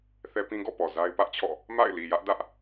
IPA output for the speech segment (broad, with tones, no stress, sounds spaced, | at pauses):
θ ɛ˦ p ĩ˦ ɡ ɔ̰˦˨ p ɔ˨ z a˦ ɪ̯ p ä˦ ʔ t͡ɕʰ ɔ̰˦˨ | m a̰˦˨ ɪ̯ l i˨ j ä˦ ʔ d ä˦ ʔ